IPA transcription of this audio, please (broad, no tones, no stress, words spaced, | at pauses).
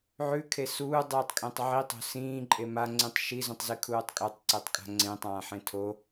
ʕʉkʰe suːdˤɨːtˤkʼẽtˤ ʕitˤo̤ sĩːǃʼe maŋ͡ǀĩtˤ ʃizũtˤzikʰuːtˤ kʼotˤǀetˤkʼa̤ ŋ͡ǀẽtˤãːħẽ tʰo